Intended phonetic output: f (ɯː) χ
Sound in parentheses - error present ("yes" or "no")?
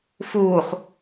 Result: yes